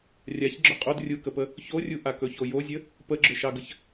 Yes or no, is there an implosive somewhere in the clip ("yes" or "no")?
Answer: no